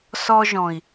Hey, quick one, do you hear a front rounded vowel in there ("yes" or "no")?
no